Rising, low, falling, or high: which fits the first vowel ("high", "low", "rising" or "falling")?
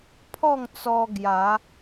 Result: falling